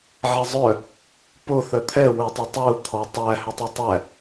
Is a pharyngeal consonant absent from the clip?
no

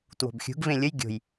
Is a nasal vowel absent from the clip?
no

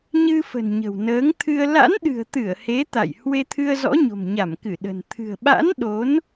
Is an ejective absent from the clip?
yes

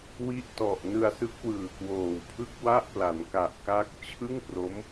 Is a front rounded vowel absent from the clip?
yes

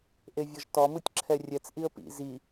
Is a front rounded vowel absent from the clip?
yes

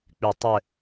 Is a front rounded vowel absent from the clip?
no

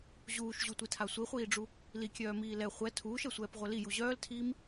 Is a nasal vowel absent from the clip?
yes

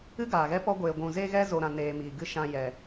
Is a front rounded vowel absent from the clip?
yes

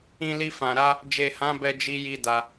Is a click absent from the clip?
yes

